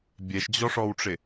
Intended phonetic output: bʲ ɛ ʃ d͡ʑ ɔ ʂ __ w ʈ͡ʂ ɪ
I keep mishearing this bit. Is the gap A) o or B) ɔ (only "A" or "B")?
B